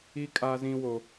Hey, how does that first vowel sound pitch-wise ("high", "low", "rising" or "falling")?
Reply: high